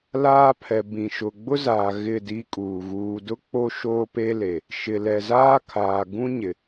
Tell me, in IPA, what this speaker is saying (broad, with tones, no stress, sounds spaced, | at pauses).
l aː˦ pʰ ɛ˨ b ĩ˨ ʃ ʊ˨ ɡ͡b ʊ˦ z aː˨ ɣ ɪ˦˨ d i˦ kʼ uː˨ ɣ uː˨ d ʊ˦ k͡p o˦ ʃ oː˦ p e˦ l e˨ | ʃ ɪ˨ l ɛ˨ z aː˦ kʰ aː˨ ɡ ũ˦ ɲ ɪ˨